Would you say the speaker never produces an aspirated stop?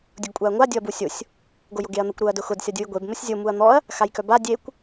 yes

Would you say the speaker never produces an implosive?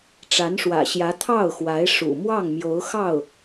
yes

